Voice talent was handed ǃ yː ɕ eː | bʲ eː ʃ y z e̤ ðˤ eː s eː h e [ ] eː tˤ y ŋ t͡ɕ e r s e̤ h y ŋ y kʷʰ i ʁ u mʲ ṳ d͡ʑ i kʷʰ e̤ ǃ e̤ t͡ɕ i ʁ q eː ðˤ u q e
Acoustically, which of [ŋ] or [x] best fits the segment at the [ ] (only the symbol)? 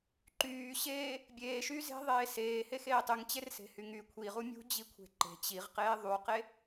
x